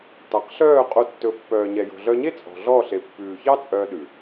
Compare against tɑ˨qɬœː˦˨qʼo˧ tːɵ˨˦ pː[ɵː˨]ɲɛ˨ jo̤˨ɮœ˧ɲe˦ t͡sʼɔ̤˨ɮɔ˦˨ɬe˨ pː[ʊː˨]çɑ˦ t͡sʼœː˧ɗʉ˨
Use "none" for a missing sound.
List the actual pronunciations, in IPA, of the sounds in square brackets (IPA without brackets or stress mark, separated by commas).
œː˨, ʉː˨